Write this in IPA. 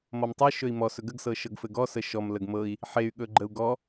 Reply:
mɔmtˤɤ ʃɵi̯mɔ sɵɡəɡ sɤʃɤɡfɘɡɔ səʃɔm ləɡmɤi̯ | ħey̯ ɠɵɡ͡ǃəu̯ɡɔ

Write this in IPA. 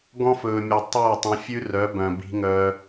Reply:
ɡɔ̃˦f ɵː˨mʲe˨ tˤoː˦˨tˤ œ̃˧fʲʉ˦rœ˨˦bœ̃˨ bi̤˦ŋœ˦

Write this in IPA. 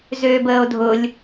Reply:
zøːbəːo̯dʱʊlʲ

